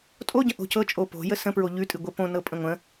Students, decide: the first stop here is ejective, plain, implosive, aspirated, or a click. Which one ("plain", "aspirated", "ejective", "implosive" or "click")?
ejective